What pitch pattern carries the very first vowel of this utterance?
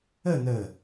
falling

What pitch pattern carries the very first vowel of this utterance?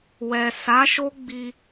low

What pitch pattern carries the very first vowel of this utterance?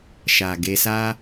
low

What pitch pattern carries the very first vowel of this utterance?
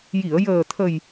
low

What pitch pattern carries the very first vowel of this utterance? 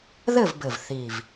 falling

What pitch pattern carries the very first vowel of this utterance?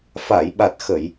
low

